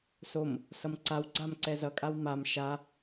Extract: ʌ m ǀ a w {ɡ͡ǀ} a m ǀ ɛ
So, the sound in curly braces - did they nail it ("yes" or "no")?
yes